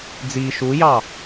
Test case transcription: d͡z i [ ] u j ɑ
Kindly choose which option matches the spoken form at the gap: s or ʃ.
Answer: ʃ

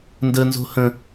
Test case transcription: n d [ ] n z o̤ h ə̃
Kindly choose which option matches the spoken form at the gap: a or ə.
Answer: ə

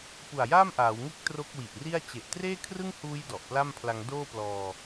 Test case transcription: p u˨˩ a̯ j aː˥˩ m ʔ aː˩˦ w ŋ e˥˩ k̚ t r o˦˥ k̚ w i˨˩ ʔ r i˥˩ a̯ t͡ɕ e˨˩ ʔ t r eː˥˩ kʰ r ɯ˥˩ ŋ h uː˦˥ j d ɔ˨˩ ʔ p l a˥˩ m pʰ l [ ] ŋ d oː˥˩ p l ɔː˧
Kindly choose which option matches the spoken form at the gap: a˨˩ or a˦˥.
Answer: a˦˥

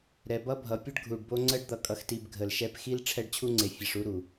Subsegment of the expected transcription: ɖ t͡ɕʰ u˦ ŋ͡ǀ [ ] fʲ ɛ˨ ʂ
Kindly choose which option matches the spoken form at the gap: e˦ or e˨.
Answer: e˨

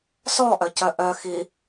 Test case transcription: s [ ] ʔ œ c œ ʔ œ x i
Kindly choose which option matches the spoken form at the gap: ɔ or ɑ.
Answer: ɔ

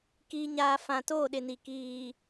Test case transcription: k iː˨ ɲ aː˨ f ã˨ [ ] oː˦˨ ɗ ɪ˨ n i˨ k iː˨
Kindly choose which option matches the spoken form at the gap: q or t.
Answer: t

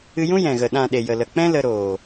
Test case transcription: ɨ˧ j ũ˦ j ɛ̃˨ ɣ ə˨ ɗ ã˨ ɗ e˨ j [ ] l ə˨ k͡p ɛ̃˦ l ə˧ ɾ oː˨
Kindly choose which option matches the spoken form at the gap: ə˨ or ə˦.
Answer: ə˨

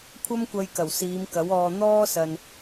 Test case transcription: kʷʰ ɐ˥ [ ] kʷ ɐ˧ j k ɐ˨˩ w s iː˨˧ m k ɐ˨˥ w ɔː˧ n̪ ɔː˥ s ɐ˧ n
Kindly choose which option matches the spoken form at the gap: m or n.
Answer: m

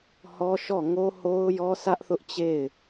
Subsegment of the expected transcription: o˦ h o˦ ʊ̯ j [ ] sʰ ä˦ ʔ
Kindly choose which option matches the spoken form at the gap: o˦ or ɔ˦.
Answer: ɔ˦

